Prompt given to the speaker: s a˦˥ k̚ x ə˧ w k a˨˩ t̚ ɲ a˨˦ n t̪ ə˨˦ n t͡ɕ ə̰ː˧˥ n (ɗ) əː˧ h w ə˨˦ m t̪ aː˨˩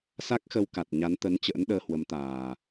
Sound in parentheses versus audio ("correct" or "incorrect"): correct